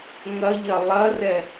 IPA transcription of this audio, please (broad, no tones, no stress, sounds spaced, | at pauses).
ŋ ɐ ʎ ɐ lˠ ɐ r ɛ